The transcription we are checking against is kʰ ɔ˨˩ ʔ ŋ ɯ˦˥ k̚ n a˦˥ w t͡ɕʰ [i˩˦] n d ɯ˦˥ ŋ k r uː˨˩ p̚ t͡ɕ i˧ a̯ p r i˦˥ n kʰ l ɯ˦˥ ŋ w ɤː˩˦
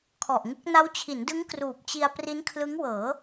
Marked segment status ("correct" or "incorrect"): correct